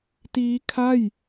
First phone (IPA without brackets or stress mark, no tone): t